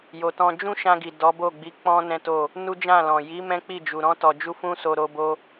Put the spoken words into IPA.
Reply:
j o˨ t ɔ̃˧ d͡ʒ ũ˦ ʃ ã˧ ɡ i˨ d ɔ˨˦ b o˦˨ ɡ͡b i˨˦ k͡p ɔ̃˦ n ɛ̃˦ t o˦˨ | n u˦ d͡ʒ ã˦˨ l ɔ̃˨ j i˨˦ m ɛ̃˦ k͡p i˦˨ d͡ʒ u˨ ɾ ɔ̃˧ t ɔ˨ d͡ʒ u˧ f ũ˦ s o˧ ɾ o˦ b o˦

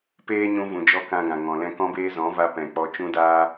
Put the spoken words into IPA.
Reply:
p eː˦ ɲ ũ˧ v ũ˨ d͡ʒ ɔ˧ k ã˧ ɡ ã˨ ŋ ɔ̃˨ l ɛ̃˧ k ɔ̃˧ b eː˧ z ɔ̃˨˦ v a˧ p ɛ̃˨ k͡p ɔ˧ t͡ʃ ũ˦ d aː˦

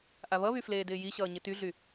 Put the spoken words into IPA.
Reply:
ʔ a β ʌ β y f l eː d ɪː j i ɕ ʌː ɲ ɪ t y ɮ y

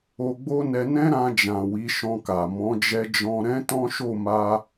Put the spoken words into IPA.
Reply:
o˧ ɡ͡b o˦ n ɛ˧ n ɛ̃˦ ɾ ã˧ d͡ʒ ã˨ w i˨˦ ʃ ɔ̃˧ k a˨ m ɔ̃˨˦ d͡ʒ ɛ˧ d͡ʒ ɔ̃˧ ɾ ɛ̃˦ t ɔ̃˦ ʃ o˦˨ m a˧

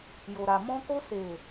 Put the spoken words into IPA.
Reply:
j o˨ ɾ a˨ m ɔ̃˧ k o˧ s e˨

